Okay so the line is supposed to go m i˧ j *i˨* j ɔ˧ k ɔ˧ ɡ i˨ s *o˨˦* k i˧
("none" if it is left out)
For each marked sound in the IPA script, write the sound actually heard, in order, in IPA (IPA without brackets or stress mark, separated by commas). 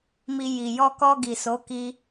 i˨, o˨˦